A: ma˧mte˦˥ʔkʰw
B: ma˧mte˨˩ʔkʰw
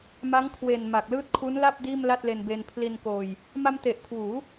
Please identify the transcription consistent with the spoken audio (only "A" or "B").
B